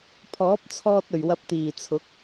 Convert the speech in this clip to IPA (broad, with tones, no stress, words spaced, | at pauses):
pʰɔː˨˥p̚t͡sʰɔː˧t̚ ɵ˨˩ɥwɐ˧p̚ t̪iː˨˩t͡sʰʊ˨˥k̚